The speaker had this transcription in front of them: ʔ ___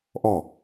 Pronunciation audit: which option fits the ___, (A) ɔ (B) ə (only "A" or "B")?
A